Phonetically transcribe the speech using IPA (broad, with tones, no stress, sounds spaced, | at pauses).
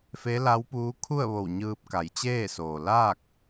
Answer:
f e˧˥ l a˧˥ w p uː˧˥ kʰ u˥˨ ə̯ ʋ o˧˩ w ɲ ɯː˧ p̚ k a˩˧ j t͡ɕ eː˥˨ s oː˩ l aː˥˨ k̚